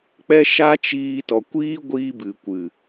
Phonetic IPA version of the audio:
k͡p ɛ˦ ʃ a˦ t͡ʃ iː˧ t ɔ˨ kʷ iː˦ ɡʷ iː˦ b ɨ˨ kʷ ɨ˨

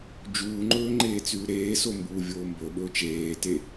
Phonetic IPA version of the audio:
d͡ʒ uː ŋ͡ǃ ɵː ŋ͡ǃ eː t͡s ʉː ɾ eː s o m b uː vʲ oː m b ɵ ɓ ɵː t͡ʃ eː t e

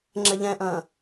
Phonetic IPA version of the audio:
ŋ͡ǁ ɛ ʎ ɛ̃ ʔ ɐ̃ː

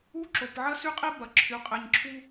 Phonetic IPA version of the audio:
u˦ ǁ o˨ p ʕ ɐ˦ s y˦ qʼ i˦ b ɐ˨ ǁʰ y˨˦ qʼ e˨ ɲ ǁʰ u˦

